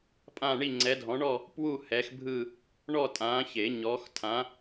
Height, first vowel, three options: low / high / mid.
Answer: low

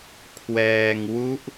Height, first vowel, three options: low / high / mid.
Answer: mid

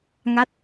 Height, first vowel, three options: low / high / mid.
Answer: low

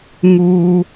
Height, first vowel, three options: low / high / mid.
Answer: high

